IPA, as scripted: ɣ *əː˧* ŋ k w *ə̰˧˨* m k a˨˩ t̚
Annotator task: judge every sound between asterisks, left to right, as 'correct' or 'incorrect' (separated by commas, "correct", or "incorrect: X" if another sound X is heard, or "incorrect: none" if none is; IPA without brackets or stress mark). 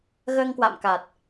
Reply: correct, incorrect: a̰˧˨